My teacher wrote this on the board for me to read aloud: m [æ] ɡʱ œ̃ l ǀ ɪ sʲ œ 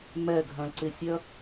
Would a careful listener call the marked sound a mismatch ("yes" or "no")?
yes